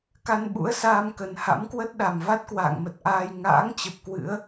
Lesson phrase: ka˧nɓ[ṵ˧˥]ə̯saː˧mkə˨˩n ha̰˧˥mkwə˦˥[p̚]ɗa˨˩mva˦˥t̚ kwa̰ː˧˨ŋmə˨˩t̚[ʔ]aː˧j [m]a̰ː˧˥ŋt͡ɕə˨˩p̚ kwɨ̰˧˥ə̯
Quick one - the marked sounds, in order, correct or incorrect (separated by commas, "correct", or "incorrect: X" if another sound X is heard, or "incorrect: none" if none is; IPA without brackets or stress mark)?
correct, incorrect: t̚, correct, incorrect: ŋ